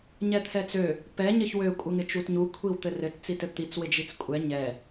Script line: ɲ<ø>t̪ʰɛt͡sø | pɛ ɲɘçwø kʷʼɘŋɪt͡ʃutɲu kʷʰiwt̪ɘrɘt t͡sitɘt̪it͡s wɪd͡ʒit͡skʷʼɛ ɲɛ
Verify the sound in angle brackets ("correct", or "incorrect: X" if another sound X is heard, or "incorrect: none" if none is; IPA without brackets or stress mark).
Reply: incorrect: ɛ